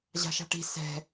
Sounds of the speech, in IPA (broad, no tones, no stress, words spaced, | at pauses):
ʑa̤ʃa̤ʈi̤ sɛ̤